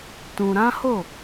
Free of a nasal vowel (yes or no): no